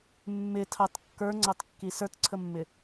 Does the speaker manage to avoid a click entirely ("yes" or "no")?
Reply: no